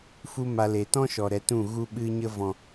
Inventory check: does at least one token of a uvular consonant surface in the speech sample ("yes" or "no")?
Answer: no